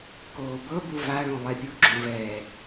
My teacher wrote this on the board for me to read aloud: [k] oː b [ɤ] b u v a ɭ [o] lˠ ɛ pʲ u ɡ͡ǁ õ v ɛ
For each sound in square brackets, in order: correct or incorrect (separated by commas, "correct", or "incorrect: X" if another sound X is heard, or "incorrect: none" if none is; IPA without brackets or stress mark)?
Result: correct, correct, incorrect: õ